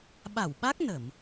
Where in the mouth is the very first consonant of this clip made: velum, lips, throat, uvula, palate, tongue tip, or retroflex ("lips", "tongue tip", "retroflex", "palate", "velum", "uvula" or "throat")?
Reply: lips